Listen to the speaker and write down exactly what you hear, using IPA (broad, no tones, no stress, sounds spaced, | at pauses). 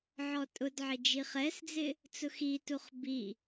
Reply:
ʕ ɔ tʼ ʊ d ʕ ɪ d͡ʒ i χ ɛ s d͡z ɪ | t͡s ʊ x i t u χ b i